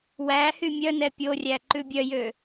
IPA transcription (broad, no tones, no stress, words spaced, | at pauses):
wæ hymʲœnɛ pʲorʲæ ǃʉbʲœjø